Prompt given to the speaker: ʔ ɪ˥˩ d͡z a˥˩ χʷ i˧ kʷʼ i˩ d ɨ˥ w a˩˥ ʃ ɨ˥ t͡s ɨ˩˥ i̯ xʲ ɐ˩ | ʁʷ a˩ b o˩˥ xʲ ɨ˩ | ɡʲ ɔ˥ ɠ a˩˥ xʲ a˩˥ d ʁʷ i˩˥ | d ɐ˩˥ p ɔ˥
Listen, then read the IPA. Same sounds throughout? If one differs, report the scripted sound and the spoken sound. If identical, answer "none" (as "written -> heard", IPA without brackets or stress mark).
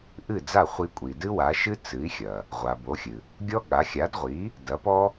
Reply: ɪ˥˩ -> ɨ˥˩